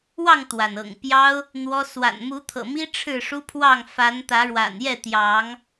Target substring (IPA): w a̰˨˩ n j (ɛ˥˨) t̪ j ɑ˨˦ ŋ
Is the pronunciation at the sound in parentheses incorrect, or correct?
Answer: correct